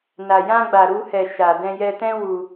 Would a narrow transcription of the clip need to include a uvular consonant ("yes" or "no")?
no